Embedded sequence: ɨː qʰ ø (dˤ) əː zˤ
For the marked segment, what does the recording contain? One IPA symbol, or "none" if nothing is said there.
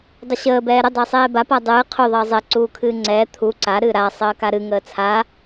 ðˤ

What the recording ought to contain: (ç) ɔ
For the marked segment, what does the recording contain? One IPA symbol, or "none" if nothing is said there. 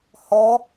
h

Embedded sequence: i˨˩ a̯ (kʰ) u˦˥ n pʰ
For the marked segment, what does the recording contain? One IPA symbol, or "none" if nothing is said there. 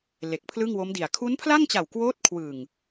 kʰ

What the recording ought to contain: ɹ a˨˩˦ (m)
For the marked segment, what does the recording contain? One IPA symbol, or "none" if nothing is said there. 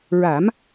m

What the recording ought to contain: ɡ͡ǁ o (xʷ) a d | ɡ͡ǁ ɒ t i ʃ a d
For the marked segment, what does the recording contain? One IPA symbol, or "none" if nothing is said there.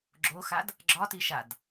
x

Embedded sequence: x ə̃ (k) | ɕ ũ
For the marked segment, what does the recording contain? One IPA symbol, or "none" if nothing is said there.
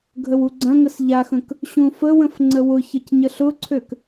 k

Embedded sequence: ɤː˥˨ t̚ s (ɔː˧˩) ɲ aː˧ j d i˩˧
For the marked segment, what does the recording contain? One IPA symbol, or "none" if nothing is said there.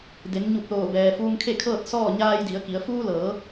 ɔː˥˨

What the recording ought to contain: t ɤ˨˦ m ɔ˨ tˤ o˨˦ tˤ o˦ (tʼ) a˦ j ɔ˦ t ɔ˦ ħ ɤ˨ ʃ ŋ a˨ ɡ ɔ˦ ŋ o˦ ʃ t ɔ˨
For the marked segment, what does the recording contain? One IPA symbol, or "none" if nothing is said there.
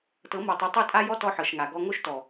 tʼ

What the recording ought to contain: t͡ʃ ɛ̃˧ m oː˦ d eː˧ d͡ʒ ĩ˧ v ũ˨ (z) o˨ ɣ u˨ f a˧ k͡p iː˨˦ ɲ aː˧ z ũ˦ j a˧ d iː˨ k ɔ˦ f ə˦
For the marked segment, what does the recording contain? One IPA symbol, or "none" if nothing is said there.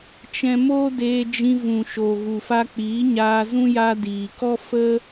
ʃ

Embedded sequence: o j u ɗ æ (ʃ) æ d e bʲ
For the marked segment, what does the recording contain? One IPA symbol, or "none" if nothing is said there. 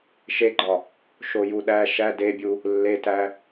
ʃ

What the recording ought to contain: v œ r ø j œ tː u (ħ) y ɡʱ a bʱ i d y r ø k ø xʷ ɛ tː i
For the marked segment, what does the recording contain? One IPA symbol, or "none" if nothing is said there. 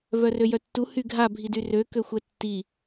h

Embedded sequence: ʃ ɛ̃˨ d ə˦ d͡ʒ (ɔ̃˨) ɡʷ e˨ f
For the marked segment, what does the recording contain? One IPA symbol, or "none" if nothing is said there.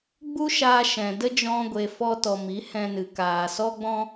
ɔ̃˧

